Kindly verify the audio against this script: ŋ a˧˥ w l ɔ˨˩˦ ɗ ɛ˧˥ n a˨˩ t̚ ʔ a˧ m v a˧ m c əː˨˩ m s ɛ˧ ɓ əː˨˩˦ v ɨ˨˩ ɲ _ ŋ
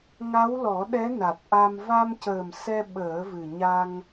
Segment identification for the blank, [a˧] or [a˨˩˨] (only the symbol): a˧